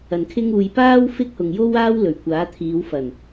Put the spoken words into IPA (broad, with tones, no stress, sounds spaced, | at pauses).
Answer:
ɐ˨ n kʰ ɪ˥ ŋ uː˧ j p aː˥ w f ɪ˥ k̚ h ʊ˨ ŋ j o˥ w aː˥ w l ɵ˨˩ ɥ kʷ aː˨˥ t̪ʰ iː˨˧ w f ɐ˨˩ n